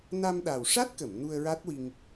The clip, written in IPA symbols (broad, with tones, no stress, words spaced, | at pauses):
na˧mɗa˨˩w ʂa˦˥t̚kə˨˩˨m nu˧ə̯ɹa˦˥t̚wi˧ŋ